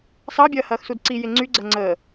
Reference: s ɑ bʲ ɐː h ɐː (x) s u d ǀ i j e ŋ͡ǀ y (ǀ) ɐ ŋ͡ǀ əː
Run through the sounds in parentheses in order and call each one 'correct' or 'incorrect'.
correct, incorrect: ɡ͡ǀ

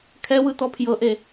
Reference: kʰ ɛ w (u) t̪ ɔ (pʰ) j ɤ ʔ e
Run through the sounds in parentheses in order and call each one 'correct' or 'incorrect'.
incorrect: ɯ, correct

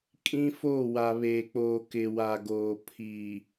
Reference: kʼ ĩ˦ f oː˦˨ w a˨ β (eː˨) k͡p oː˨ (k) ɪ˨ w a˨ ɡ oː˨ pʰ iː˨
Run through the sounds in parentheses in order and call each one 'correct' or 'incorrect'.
correct, correct

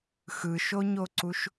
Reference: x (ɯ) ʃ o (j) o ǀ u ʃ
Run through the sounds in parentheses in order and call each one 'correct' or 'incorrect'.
correct, incorrect: ɲ

